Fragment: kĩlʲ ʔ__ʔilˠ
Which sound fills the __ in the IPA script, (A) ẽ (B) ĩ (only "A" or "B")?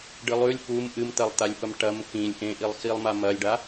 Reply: A